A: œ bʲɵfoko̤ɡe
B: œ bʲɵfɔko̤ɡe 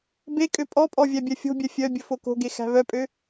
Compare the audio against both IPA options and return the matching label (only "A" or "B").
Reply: A